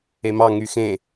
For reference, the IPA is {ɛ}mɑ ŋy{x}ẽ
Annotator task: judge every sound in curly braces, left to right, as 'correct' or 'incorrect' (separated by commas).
incorrect, correct